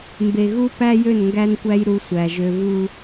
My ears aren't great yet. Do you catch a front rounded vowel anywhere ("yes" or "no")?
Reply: yes